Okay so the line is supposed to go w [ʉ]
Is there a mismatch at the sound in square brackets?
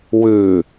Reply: no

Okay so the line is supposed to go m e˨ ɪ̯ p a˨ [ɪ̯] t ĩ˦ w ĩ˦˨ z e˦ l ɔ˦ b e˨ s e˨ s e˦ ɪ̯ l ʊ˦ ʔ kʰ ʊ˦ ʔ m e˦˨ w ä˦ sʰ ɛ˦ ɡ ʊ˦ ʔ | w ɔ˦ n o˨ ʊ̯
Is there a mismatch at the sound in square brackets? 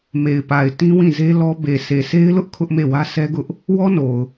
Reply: no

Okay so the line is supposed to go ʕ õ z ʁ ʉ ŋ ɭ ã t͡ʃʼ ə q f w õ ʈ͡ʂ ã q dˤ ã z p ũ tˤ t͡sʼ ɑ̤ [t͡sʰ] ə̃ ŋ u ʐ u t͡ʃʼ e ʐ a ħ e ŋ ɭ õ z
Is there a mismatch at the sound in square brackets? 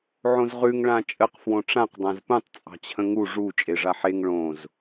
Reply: yes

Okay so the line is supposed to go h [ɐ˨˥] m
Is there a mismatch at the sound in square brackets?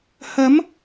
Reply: no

